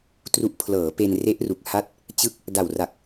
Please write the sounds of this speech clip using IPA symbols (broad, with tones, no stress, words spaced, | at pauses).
tru˨˩ʔpʰlɤː˩˦ pe˧nre˦˥ʔ ru˨˩k̚ha˥˩t̚ | t͡ɕɯ˥˩k̚ | da˨˩wra˨˩k̚